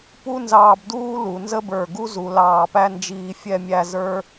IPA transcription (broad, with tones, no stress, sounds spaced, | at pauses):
p u˥ n z ɑː˧ b d uː˥ l u˩˧ n z ə˥ b ə˞˧˩ ɡ u˥ z u˩˧ l ɑː˧˩ p æ˥˧ n d͡ʒ iː˧ fʲ ɛ˥˧ mʲ æ˥˧ z ə˞˥